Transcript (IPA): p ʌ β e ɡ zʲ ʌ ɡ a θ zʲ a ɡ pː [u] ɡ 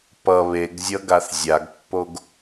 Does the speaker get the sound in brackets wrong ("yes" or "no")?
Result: yes